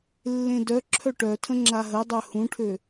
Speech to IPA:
lː ẽ d œ ǁʰ œ ʈ œ tʰ ə̃ ŋ͡ǁ a ɦ ə dˤ œ h ũ ʈʰ ø

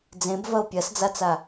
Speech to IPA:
d͡z ẽ b v ɐ o̯ pʲ ɐ s d͡z a t͡s a

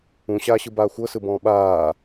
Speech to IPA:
ũ ɕ aː ɕ ɯ b aː xʷ ɤ s ɯ b ɔ̃ː ɓ aː

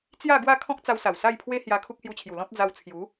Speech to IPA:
t͡s j a˥˧ ɡ w a˥˧ kʰ ɔ̃˦ k̚ t͡s a˧ w s a˨˩ w s a˥˧ j pʰ w e˦ h j a˧ kʰ u˦ k̚ h j u˧ t͡ɕʰ j u˨˩ l ɔ̃˦ t̚ d͡z a˧ w t͡sʰ j u˨˦

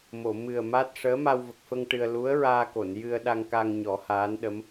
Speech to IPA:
m o˨˩˨ m ɨ˨˩ ə̯ m a˦˥ t̚ ʂ əː˧˥ m a˧ w v ə˨˩ k̚ f ə˧ ŋ ʈ ɨ˧ ə̯ l u˧˥ ə̯ ɹ aː˧ k o˨˩˨ n j ɨ˧ ə̯ ɗ a˧ ŋ k a˧ ŋ ɲ ɔ˨˩˦ h aː˧˥ n ɗ ə˧˥ m

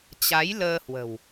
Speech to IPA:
t͡ɕ a˨˦ j l əː˧ h w ə̤˨˩ w

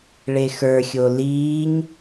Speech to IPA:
ɭ e x ə˞ xʲ o l iː ɲ

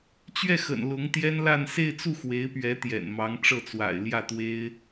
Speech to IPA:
t͡ɕ ɥ ɛ˥˩ x ə̰˨˩ n l ʊ˧˥ ŋ t̪ j ɛ˥ n l a˥˧ n s e˥˧ ɪ̯ t͡s u˥˩ x w e˧˥ ɪ̯ p ɥ ɛ˧˥ t̪ j ɛ̰˨˩ n m ɑ˧˥ ŋ ʈ͡ʂ ɤ˥˩ t͡s w a̰˨˩ ɪ̯ l j ä˥˩ t̪ w e˥ ɪ̯

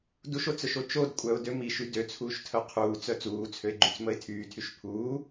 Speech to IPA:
d u ʃ o t͡s œ ʃ o t͡ʃ o d kʷʼ œ ʊ̯ d ø m i ʃ y d ø t͡sʰ uː ʃ tʰ œ qʰ uː t͡s œ t͡s uː t͡sʰ ø ɪ̯ ɡ͡ǃ y t͡s m ə ɪ̯ tʰ yː tʰ y ʃ pʰ uː

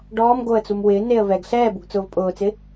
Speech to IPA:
ɖ ɔː m ɡ o ə̯ t͡s u m w ɪː n e ə̯ v ɛ ɡ ɬ ɛː b u ɡ t͡s ʊː v pʼ ʊː t͡s ɪ

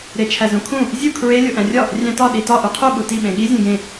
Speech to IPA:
ɾ e t͡ʃʰ æ z ũ kʰ ũ | zʲ u kʰ ɹ e lʲ o ʔ æ̃ rʲ ɒ | rʲ æ̃ t ɒ ɗ i t ɒ ʔ u qʰ u ɓ u t i ɓ ẽ ɠ i zʲ ẽ ɡ ẽ

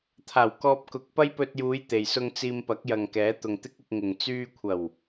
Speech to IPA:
t̪ʰ aː˨˩ w k ɔː˧ p̚ k ʊ˨˥ k̚ p ɐ˥ j p ɵ˧ t̚ j uː˨˧ j t̪ e˨ j s ʊ˥ ŋ t͡s iː˧ m p ɐ˨˥ k̚ j ɐ˨ ŋ k ɛː˨˥ t̪ ʊ˨ ŋ t̪ ɪ˥ k̚ ɪ˧ k̚ ŋ ɪ˨ ŋ t͡s yː˧ kʷʰ ɐ˨˩ w

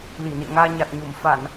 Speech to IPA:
l i˧˩ n ḭ˧˨ ə̯ ŋ aː˧ ɲ a˨˩ t̚ ɲ u˧˩ m f a˧˩˨ n

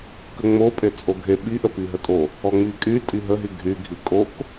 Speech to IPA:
k ə ŋ͡m o pʼ e t͡sʼ o ɡʱ e ɓ i ʔ ə p i ɦ ə tʼ o | ɔ ŋ͡m i kʼ y tʼ i ɦ ə ɦ i ɡʱ y ɡʱ i kʼ o k

